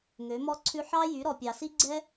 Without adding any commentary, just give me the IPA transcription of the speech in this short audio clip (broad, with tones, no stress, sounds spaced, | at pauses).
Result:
ŋ ø˨˦ m ɔ˦ ǀʰ ʉ˦ ħ ɑ˦ j y˨˦ ɾ ɔ˨ pʲ ɑ˨ s i˦ ɡ͡ǀ ɛ˦